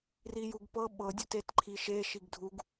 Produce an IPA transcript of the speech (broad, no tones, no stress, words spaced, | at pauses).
rijuɡpɤ ɓɤdʲu tetǃʰiʃe ʃiɡdʱuɡ